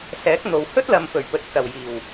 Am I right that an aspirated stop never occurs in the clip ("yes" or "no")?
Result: yes